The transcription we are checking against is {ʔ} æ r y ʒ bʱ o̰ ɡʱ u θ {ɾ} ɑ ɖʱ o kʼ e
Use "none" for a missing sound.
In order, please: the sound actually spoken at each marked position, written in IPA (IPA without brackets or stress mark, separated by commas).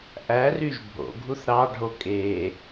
ʔ, ɾ